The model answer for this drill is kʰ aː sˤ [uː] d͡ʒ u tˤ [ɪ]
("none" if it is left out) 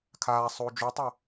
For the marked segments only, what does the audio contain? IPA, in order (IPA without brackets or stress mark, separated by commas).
uː, ɛ